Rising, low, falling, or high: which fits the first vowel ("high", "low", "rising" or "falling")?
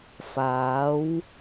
rising